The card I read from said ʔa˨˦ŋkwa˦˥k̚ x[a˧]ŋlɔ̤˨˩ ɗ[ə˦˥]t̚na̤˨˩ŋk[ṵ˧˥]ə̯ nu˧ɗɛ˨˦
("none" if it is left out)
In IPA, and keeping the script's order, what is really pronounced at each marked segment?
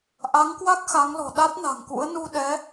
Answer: a˨˦, a˦˥, ṵ˧˥

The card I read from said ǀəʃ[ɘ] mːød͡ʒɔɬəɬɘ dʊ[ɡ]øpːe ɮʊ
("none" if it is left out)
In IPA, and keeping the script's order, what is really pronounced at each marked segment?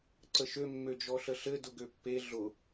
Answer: ø, ɡ

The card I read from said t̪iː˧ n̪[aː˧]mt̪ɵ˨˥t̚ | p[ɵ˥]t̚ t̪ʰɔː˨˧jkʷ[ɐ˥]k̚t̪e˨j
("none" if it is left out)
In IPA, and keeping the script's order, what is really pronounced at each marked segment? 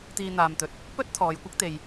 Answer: aː˧, ɵ˥, ɐ˥

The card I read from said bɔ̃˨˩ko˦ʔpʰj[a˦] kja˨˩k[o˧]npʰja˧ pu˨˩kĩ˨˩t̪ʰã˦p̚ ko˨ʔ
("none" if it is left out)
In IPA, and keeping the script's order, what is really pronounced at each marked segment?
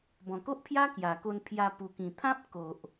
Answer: a˦, o˧

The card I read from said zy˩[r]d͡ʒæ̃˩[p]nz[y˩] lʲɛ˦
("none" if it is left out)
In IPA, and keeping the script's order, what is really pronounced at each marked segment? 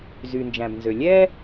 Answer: n, b, ø˩

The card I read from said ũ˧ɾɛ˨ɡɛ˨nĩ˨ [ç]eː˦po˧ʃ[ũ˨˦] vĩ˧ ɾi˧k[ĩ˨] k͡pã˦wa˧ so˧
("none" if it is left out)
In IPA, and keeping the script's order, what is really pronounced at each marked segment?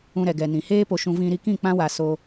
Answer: h, ũ˧, ĩ˦˨

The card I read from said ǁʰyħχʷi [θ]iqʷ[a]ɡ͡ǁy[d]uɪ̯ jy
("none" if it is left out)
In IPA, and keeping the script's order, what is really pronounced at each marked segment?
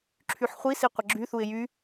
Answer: s, ə, θ

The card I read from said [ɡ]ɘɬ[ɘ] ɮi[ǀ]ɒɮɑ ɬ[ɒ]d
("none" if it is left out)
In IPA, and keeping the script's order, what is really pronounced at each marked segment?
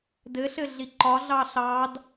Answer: d, ɘ, ǃ, ɑ

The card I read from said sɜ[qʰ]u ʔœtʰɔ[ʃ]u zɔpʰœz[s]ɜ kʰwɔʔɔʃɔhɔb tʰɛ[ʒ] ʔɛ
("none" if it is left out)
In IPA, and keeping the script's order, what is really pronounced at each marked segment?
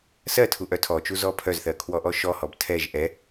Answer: tʰ, t͡ʃ, θ, ʒ

